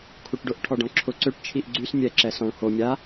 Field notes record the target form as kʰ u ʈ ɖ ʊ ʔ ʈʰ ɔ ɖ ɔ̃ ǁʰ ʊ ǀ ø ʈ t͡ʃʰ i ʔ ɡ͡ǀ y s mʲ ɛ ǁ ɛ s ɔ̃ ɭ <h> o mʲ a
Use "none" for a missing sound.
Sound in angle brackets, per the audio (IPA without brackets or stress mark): h